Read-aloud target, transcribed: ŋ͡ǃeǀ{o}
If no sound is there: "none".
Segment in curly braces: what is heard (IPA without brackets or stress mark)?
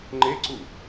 u